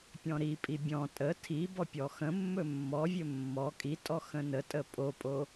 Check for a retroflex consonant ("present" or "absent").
absent